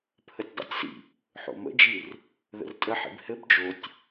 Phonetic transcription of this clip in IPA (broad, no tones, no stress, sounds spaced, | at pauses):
pʰ ə tʲ dˤ ə̰ tʲ s ḭ | ħ o̰ m ə̰ d͡ʒ i r | ð ə̰ r tʼ ə ħ ḭ b h ɘ b d͡ʒ o tʲ